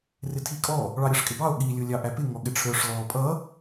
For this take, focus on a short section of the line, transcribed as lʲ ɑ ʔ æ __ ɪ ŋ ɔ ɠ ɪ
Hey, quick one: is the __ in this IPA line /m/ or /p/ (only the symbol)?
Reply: p